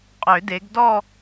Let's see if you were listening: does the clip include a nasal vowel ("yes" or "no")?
no